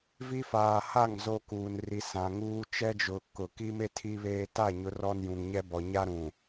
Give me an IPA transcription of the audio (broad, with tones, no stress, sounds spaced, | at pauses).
v i˦ f aː˨ h a˦˨ ŋ z o˦ k uː˨ n r i˨ s ã˨ ŋ uː˦ t͡ʃ ɛ˦ d͡ʒ ʊ˨ k ʊ˨ k i˦ m e˦ tʰ i˦ β eː˦ t a˦˨ ɲ ʊ˨˦ r ɔ˦ n j ũ˨ ŋ ɲ ɛ˦ b ɔ˨ ɲ a˦ ɾ ũ˨